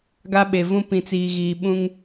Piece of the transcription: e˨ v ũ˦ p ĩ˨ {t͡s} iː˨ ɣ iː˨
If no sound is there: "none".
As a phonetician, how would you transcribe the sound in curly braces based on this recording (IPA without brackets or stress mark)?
t͡s